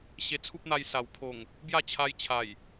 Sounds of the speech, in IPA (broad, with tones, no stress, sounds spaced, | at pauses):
ɕ e˧ t͡sʰ u˦ p̚ n̪ a˧ j s a˨˩ w pʰ o˨˩ ŋ | b j a˥˧ t͡ɕʰ a˧ j t͡ɕʰ a˨˩ j